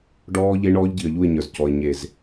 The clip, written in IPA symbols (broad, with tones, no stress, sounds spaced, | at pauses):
ɖ ɔː˦ ʎ e˦ ɳ ɔː˦ ʎ ɟ i˨ ə̯ ʎ u˦˨ ɪ̯ ɲ ə˞˨ z c ɔ˨ ɪ̯ ɲ e˨ z